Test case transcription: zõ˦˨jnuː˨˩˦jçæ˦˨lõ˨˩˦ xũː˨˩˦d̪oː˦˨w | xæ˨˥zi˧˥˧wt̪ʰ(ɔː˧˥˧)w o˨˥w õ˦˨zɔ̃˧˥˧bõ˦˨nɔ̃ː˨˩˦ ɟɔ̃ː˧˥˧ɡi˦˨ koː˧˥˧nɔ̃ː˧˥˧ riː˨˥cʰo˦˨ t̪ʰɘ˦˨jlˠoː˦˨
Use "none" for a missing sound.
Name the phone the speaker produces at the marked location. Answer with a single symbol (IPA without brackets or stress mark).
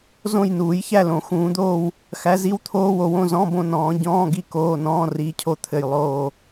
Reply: oː˧˥˧